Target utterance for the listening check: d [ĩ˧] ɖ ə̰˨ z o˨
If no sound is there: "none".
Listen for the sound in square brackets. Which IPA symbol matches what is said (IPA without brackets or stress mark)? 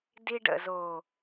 i˧